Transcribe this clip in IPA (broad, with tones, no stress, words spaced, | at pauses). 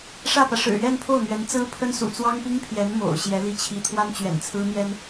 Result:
ʂä˥˩pä˩ ʂɻ̩˨˩ɥɛ˥˧npʰo˥˩ʊ̯n̪ɥɛ˧˥n t͡sɹ̩˥pʰə˥nsṵ˨˩ t͡swɑ˥ŋpi˥ŋpʰjɛ˧˥n mo̰˨˩ʊ̯ɕjɛ˧˥ li˥˩t͡ɕʰi˥ t̪ʰwa˥nt͡ɕɥɛ̰˨˩n t͡sʰɹ̩˥n̪jɛ˥n